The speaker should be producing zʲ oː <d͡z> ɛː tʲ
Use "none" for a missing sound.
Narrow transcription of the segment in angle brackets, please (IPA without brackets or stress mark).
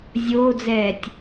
d͡z